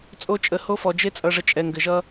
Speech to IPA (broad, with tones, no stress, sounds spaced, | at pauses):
t͡sʼ o˦ t͡ʃʼ ə˨˦ h o˦ f ɔ˨ d͡ʒ e˦ t͡sʼ ʌ˨ ʐ ə˨ t͡ʃʼ ɛ˨ ŋ ɡ ɘ˨ ʒ ʌ˦